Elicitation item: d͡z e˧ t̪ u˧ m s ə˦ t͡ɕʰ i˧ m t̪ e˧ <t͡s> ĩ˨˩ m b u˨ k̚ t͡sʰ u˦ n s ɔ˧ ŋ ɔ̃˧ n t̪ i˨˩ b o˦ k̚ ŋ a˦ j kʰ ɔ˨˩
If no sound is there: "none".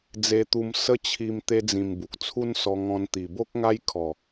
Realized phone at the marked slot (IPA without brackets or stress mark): d͡z